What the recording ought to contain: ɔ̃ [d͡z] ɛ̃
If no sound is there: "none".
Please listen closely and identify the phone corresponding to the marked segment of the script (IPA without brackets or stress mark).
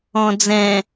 d͡z